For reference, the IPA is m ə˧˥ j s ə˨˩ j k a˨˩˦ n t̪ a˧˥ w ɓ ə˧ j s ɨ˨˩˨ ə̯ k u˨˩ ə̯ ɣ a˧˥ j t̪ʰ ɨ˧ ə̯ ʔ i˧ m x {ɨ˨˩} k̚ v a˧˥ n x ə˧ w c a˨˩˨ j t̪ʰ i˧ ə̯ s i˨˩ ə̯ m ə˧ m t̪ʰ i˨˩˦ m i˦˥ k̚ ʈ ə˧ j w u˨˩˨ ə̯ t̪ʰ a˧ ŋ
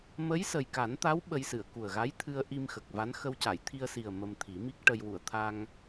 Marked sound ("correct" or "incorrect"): incorrect